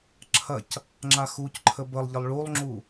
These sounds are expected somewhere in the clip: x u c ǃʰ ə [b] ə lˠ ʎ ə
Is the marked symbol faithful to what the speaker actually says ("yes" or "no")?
yes